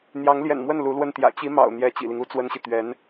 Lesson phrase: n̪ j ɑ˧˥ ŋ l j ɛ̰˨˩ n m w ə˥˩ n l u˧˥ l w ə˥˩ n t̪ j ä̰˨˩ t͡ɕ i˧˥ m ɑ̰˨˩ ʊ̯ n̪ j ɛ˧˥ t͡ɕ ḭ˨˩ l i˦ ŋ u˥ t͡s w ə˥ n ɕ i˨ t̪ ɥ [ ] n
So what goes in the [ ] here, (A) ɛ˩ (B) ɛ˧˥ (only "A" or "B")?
B